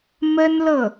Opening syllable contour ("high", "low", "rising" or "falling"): high